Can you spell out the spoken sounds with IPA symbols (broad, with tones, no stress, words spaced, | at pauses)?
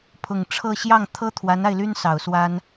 pʰʊ˨˩ŋʈ͡ʂʰɤ˥˧ ɕjɑ˥˩ŋt̪ʰɤ˥ t̪ʰwa˧˥na˧ɪ̯ly˥n sɑ˨˩ʊ̯swa˥n